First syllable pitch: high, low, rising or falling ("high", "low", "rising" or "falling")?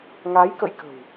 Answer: rising